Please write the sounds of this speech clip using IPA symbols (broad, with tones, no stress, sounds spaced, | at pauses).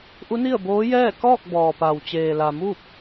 ʔ u˧˥ n i˥˨ ə̯ b oː˧˥ j ɛː˥˨ k ɔː˥˨ k̚ b ɔː˩ p a˩ w t͡ɕ eː˩ l a˩ m uː˥˨ p̚